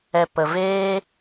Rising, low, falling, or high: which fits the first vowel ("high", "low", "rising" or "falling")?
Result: low